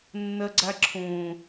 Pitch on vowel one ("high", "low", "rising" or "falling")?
low